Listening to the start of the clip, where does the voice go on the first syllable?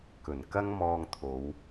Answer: low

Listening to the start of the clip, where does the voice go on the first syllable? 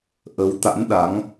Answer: rising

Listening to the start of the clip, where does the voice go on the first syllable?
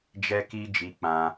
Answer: high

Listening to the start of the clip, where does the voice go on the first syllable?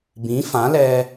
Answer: rising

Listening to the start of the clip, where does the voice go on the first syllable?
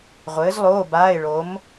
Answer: rising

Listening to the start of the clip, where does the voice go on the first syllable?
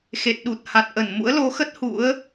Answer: low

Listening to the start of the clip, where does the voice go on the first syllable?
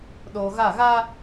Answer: low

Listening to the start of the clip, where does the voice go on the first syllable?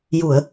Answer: low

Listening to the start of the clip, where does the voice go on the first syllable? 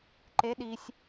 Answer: rising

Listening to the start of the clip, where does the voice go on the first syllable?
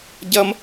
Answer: high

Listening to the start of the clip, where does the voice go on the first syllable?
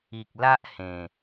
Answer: low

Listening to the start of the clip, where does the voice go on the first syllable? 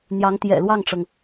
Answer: rising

